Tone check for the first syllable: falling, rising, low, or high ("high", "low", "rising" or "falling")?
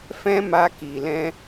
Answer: high